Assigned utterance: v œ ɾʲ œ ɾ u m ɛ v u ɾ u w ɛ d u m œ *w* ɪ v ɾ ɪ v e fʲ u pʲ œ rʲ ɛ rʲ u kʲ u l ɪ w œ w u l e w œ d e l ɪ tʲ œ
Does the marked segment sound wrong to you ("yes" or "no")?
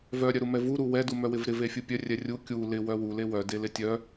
no